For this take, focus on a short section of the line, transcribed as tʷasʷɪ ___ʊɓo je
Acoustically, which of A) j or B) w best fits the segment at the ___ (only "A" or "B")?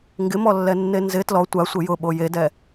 A